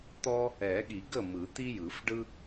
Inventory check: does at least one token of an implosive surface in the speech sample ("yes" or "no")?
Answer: yes